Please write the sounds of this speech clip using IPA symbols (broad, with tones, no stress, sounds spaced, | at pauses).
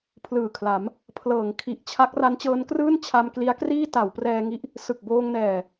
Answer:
pʰ l ɯː˨˩ kʰ l a˩˦ m | pʰ l ɤː˩˦ ŋ kʰ i˨˩ ʔ t͡ɕʰ a˦˥ k̚ r a˦˥ n t͡ɕ ɤː˦˥ n k r ɯː˥˩ n t͡ɕʰ a˧ m k l i˦˥ a̯ k r iː˥˩ t a˩˦ w p r ɛː˧ ŋ i˦˥ ʔ | s ɯ˨˩ k̚ b oː˧ ŋ n ɛː˨˩